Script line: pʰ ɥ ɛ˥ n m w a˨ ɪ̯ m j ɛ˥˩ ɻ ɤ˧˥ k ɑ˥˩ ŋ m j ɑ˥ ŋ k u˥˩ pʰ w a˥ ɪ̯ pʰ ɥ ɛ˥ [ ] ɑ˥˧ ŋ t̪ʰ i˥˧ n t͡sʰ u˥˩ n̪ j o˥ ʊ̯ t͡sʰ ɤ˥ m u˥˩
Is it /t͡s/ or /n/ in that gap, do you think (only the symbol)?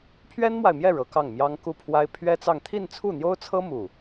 t͡s